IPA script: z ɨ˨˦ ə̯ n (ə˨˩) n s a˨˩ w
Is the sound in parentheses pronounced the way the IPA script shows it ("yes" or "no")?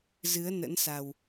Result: no